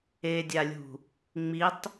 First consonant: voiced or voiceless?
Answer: voiced